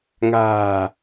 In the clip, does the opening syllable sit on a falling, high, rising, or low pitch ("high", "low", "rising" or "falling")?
low